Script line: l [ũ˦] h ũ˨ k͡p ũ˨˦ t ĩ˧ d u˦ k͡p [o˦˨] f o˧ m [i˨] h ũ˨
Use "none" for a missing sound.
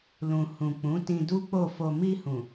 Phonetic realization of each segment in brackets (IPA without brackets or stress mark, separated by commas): ũ˨, o˦˨, i˧